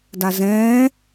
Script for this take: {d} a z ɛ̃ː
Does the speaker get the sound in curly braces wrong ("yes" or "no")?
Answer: no